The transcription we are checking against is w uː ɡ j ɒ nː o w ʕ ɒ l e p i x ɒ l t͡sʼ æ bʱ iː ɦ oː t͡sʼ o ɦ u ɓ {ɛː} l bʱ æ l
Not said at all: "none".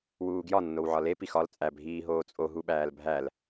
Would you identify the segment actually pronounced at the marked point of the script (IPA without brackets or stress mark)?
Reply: æː